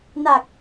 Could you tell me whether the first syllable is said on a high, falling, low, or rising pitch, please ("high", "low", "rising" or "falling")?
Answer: low